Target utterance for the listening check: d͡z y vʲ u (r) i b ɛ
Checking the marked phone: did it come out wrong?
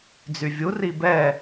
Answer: no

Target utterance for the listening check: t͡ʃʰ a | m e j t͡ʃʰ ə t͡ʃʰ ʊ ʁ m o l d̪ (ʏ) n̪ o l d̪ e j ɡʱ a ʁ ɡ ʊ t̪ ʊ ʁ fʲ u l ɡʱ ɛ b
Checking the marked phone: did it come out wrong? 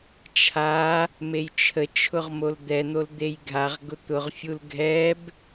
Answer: yes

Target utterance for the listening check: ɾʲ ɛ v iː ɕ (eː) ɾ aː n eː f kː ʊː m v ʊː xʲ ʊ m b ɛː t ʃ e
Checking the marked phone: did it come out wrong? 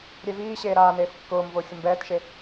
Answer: no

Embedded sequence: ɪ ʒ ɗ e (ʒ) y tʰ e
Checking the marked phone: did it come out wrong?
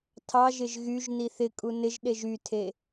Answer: no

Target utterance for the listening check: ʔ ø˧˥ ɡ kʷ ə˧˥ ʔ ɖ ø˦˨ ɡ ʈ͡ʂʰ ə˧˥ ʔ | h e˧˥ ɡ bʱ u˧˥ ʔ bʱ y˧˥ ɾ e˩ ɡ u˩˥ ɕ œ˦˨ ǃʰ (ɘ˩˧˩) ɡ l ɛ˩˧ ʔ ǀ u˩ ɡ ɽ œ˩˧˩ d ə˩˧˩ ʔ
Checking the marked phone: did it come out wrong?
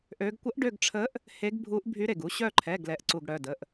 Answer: yes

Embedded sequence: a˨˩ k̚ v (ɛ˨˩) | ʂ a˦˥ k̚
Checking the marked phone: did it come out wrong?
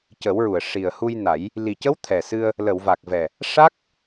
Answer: no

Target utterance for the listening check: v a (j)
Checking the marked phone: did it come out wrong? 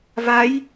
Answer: no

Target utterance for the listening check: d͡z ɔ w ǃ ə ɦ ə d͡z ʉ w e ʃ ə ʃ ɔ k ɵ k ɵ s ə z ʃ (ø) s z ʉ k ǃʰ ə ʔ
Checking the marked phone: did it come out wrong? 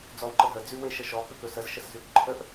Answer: yes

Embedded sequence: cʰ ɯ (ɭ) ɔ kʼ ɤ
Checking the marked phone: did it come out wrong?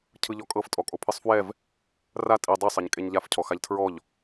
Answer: yes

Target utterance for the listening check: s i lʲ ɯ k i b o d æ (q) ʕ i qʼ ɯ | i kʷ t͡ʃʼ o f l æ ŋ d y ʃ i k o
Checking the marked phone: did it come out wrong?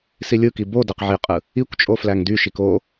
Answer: no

